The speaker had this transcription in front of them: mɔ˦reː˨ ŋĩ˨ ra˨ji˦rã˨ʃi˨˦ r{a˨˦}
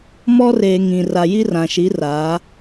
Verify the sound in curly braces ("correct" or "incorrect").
correct